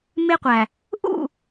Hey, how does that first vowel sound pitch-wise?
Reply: high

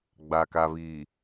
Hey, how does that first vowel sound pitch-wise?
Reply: low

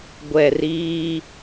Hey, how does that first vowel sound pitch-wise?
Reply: low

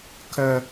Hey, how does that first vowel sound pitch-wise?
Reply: high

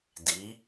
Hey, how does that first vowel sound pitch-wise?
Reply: rising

